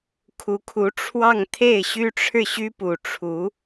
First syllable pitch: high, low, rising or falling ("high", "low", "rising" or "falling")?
rising